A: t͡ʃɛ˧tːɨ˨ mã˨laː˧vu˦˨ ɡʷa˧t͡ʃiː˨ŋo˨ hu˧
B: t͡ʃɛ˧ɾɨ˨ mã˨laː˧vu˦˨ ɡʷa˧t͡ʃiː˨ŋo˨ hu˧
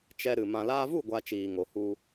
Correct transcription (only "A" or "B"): B